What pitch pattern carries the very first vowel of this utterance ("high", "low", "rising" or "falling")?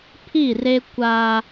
falling